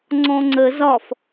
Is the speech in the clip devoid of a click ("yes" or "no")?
no